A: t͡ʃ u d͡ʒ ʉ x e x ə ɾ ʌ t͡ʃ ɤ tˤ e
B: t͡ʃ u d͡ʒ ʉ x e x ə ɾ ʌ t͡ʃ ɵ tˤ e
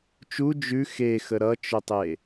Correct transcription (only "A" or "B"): B